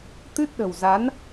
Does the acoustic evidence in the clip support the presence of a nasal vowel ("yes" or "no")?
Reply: no